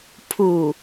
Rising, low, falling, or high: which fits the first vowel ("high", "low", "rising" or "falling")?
low